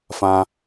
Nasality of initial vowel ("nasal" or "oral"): nasal